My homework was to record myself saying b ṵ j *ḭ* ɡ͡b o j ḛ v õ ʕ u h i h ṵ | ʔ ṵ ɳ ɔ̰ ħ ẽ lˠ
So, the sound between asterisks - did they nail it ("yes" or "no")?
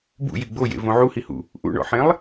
no